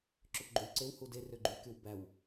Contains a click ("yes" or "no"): yes